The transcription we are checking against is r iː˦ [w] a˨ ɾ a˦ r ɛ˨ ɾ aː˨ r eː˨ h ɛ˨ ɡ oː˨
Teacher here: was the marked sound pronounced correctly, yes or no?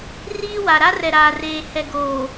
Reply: yes